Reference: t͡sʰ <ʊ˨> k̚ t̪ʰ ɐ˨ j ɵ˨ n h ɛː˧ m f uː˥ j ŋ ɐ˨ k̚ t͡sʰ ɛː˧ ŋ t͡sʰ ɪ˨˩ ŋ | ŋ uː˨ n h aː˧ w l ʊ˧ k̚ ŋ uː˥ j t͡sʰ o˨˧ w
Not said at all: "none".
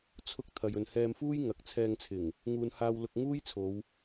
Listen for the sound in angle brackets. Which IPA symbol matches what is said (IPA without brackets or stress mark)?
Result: ʊ˧